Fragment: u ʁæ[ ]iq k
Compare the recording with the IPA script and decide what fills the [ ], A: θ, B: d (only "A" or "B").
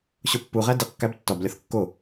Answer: B